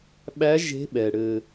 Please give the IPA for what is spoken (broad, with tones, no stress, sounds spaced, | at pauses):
ɓ æ˧˥ ʒ e̤˧˥ ɓ ɛ˩ ɽ ɘ˩